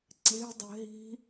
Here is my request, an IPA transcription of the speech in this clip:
ǀ e̤ dˤ ɛ̤ ɦ i̤

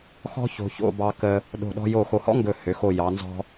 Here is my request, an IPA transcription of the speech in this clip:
x ɔ̤˥ ç o̤˧ ç o̰˥˧ b ɑ˧ k ə˧ | ɗ o̤˧˩ ɗ ɔ̤˧ j o˧˩ x o˧˩ h ɔ̰˥ ŋ ɡ ɵ˧˩ h ø˩˧ x o˧˩ j ɑ˩˧ n z ɔ̤˧

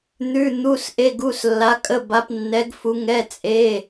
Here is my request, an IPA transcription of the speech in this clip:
n̪ ʉ˩˧˩ n̪ u˩˧˩ s ʔ e˩˧˩ ɡ u˩˧˩ s lː a˩˧ kʼ ə˩˧˩ b a˩˧ p nː ɛ˩˧ ɡ f u˩˧ ŋ ɛ˩˧˩ t͡sʼ e˩˧˩

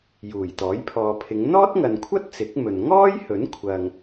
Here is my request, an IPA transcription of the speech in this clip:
j uː˨˩ j t̪ ɔː˨˥ j pʰ ɔː˨ pʰ ɪ˨˧ ŋ n̪ ɔː˥ t̚ ŋ ɐ˨ n kʷʰ ɐ˥ t̚ t͡s ɪ˨˥ k̚ m ɵ˨ n ŋ ɔː˥ j h ɵ˨˥ n kʷʰ ɐ˨ ŋ

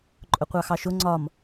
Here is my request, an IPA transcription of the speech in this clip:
ǃʼ ʊ qʷ ɑ x ɑ ʃ ʊ ŋ͡ǀ ɒ m

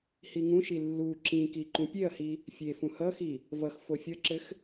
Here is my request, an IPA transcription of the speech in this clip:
h i ŋ ũ ʃ i lː u ǁ ĩ k i ǃ ũ pʲ e ɐ̯ h i | fʲ e f ũ h ʌ x i | v ʌ x f o fʲ ʌ ǁ ɘ x

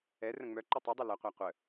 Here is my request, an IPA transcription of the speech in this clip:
ɛ r ə̃ ŋ͡m œ ǃ i tˤ i dˤ i l ɐ qʷ æ qʷ ə

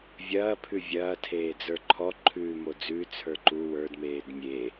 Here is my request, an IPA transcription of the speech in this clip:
vʲ ɐː pʰ ʉ vʲ ɐː tʰ eː d͡z ə˞ ǃʰ ɔ ǃʰ ʉː m o d͡z ʉː t͡sʰ ə˞ ǃ u w ə˞ d m eː d mʲ e

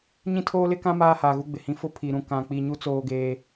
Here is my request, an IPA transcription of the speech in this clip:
ɲ ĩ˦ tʰ oː˦ l ɪ˦ k ã˦ m aː˦ h aː˨ ɣ u˦ ɡ͡b ɪ˨ h ĩ˦ f ʊ˦ pʰ i˨ ɾ ũ˨ k ã˨ k͡p i˨ ɲ u˦ t͡s oː˦ ɡ eː˦

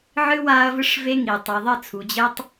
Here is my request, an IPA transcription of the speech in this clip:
ʕ ɨ˦ w a˦ ɐ̯ v ɨ˦ ʂ v e˦ ŋ i˨ tˤ ɨ˨ ðˤ ɘ˦˨ t͡sʰ u˨ d͡ʑ ɘ˦ tˤ

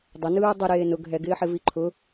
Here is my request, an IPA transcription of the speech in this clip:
dˤ ə n ɯː dˤ ɪ ɾ eː n ʊ ɡ ɦ ɛ ɡ ɪː ħ ɪ v i ǃʰ ʊ

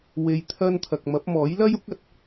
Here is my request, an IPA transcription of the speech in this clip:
w e˨ j t̪ʰ ɐ˧ n t̪ʰ ɐ˨ k̚ m ɐ˨˥ p̚ m ɔː˨˥ j l ɐ˥ j ʊ˥ k̚ ɐ˨ t̚

